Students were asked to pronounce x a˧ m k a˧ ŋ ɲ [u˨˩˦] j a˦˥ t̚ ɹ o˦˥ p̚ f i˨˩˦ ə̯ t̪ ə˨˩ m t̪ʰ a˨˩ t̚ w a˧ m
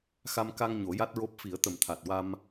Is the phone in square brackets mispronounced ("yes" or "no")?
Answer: yes